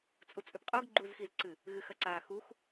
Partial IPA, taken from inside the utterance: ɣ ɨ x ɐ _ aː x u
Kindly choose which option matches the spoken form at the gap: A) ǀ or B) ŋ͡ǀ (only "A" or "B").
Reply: A